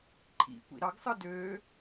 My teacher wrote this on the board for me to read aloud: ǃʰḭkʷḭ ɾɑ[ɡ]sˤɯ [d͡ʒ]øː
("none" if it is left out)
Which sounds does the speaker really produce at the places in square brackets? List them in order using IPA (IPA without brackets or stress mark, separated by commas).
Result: ɡ, d